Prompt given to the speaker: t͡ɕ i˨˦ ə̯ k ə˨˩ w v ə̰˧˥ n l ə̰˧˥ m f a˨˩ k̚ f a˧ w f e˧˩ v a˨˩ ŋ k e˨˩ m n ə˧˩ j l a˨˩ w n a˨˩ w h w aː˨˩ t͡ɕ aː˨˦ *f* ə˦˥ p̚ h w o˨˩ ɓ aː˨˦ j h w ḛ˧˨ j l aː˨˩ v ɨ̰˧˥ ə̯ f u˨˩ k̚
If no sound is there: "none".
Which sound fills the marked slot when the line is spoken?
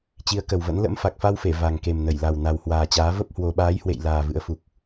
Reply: v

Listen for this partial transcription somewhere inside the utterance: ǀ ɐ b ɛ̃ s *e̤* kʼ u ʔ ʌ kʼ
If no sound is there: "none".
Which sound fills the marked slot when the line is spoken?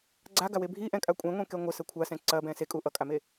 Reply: e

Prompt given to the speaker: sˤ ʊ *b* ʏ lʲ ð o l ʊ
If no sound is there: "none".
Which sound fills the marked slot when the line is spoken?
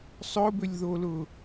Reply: b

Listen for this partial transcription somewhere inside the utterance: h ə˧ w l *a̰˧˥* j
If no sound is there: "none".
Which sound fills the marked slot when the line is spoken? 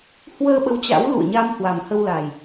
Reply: a˨˩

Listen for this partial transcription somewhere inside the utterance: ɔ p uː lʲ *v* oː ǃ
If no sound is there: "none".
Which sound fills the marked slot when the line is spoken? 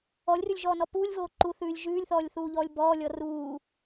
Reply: v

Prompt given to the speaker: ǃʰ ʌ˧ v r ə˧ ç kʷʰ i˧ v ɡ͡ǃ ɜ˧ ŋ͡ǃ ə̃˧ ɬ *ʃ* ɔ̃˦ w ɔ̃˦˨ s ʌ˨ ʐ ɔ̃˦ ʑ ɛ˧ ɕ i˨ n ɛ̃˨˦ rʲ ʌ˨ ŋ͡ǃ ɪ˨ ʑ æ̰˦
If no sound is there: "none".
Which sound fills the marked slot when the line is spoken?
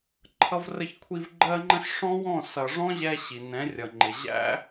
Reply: ʂ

